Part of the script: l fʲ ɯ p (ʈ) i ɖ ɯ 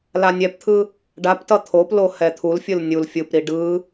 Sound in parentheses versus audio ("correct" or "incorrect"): incorrect